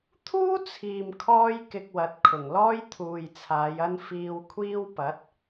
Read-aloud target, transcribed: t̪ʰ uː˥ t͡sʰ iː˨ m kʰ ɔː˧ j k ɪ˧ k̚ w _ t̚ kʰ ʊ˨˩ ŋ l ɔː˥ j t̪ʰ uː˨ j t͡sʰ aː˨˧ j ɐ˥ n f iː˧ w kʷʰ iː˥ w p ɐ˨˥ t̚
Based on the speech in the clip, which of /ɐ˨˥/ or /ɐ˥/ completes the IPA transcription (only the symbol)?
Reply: ɐ˨˥